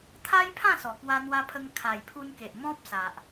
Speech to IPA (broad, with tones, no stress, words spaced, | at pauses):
t̪ʰa˦jpʰã˥˧sɔ˨˩ kwa˧n̪wa˧pʰə˧ŋ kʰa˨˩jpʰu˧nke˨ʔ mɔ̃˦p̚sa˨ʔ